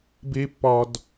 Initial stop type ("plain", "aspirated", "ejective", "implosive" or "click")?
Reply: plain